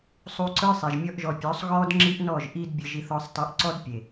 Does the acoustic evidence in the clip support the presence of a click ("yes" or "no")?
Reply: yes